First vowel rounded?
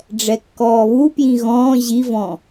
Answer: no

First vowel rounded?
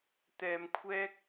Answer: no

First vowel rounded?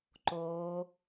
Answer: yes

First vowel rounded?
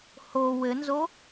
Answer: yes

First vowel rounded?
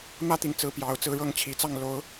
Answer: no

